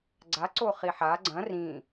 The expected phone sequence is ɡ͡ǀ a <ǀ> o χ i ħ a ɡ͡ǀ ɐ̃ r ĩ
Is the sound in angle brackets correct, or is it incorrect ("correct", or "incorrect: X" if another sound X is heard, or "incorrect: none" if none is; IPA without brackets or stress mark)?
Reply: correct